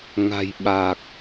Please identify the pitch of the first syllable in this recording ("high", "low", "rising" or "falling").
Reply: low